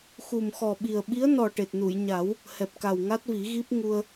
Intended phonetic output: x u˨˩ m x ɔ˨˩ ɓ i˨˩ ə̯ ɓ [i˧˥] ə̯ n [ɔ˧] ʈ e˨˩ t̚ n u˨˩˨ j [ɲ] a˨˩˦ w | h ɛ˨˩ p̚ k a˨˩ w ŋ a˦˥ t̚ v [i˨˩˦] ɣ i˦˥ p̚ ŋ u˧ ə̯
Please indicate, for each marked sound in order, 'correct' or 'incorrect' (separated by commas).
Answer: correct, incorrect, correct, correct